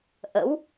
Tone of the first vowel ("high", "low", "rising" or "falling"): rising